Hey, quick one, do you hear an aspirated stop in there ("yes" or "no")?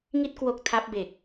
yes